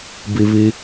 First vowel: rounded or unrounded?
unrounded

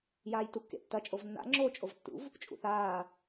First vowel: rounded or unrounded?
unrounded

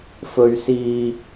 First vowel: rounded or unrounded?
rounded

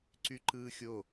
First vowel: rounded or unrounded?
rounded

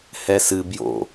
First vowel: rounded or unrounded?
unrounded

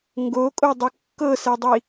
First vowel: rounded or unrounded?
rounded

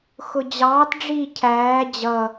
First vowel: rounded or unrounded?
rounded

